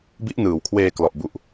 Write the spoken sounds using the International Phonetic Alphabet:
b i˦˥ ʔ n ɯː˩˦ w kʰ w eː˧ k l ɔ˨˩ ʔ b u˨˩ ʔ

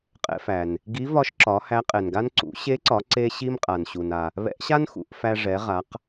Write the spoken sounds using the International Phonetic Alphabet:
qʼ ɛ̰˧ f æ˩ n | ɡ i˧˥ v ɒ˧˥ ʃ ǁ ɒ˩˧ h æ˧˥ qʼ ɛ˩ n ɡ a˥ n ǀ ṵ˩˧ ɕ e˧˥ ǀ ɒ˩˧ ǀ e˧ ɕ i˧ m qʼ a˩ n ɕ u˩ n a˩ | β ɛ̰˧˥ ʔ ɕ a˥ n x ṵ˩˧ ʔ f æ˧ ʐ ɛ˩˧ ʁ a˩˧ q

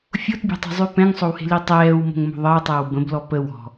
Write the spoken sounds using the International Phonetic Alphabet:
fʲ o t bʲ ɛ̤ tˤ o̤ zˤ ʉ p ɛ̃ ŋ sˤ o w h e̤ l i tˤ ɛː w m o̤ ŋ m o̤ ðˤ əː tˤ əː w b ə̃ b l ɔ p ə w ɔ̤

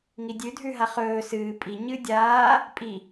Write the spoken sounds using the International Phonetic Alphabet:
ŋ i dʲ ʉ dʱ ʉ ɦ a χ ɵː s ɨː pʼ i ɲ ɨ dʲ aː | pʼ i

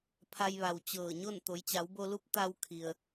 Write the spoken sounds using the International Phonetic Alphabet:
pʰ a˧ j ʋ a˩ w t͡ɕ ɤː˧˩ ɲ o˥˨ n t̪ o˩˧ j t͡ɕ a˩˧ w b o˧ l u˧˥ p̚ t̪ a˧ w kʰ i˩ ə̯

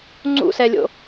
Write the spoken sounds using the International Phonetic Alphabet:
ŋ͡ǀ ṵ s ɛ lʲ o̰

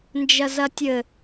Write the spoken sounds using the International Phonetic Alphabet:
n d͡ʒ ɐ z ɐ tʲ ɘ

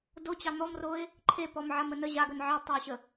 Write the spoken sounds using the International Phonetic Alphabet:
d o t͡ɕ ɑ n̪ ɔ m r o ɪ̯ | ǃʰ e p ɔ m ʕ a m ə n ə ʑ a ɡ œ n ʕ ɑ d tˤ ɑ ʊ̯ ɕ ə

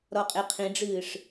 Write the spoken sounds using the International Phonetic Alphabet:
ɾ ɔ qʼ e qʰ ĩ ɖ͡ʐ ɨː ʂ

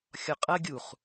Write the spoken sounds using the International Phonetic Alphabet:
xʲ ɔ qʼ ɐ ɡʲ u χ

